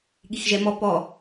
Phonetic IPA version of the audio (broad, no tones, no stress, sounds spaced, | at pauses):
ɠ i x ʒ ɛ m ɔ p ɔ